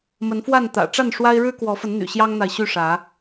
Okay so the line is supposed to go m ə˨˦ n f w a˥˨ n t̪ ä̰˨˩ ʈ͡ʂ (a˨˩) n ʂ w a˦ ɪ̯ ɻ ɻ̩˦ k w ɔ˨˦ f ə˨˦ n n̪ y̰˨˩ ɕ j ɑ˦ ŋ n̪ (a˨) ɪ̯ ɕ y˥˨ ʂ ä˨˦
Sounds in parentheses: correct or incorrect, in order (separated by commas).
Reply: incorrect, correct